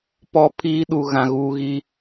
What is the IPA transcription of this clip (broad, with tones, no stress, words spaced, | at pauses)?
pɔ˦pʰiː˦ ɗu˨ɣã˨ ɣuː˦ɣiː˦